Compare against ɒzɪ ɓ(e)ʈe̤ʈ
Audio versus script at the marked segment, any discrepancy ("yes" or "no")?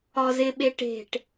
no